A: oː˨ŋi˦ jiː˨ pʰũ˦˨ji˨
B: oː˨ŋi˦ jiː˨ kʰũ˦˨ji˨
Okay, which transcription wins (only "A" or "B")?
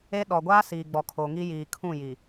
B